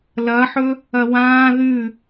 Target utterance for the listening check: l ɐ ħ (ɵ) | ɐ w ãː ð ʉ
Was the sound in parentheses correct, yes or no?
yes